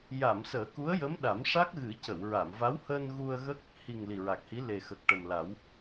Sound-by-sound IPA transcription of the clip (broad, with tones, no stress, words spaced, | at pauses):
ja˨˩˨m səː˨˩˦ku˧˥ə̯jə˧˥m ɗa˨˩˦mʂa˦˥k̚ɣɨ˨˩˦ cə˨˩˨wɹa˨˩˨mva˧˥whəː˧n ɣu˧ə̯ɣə˦˥k̚ | hi˨˩ŋ li˨˩ɹa˨˩k̚hi˧˥ le˨˩xə˨˩k̚ʈə˨˩mla˨˩˦w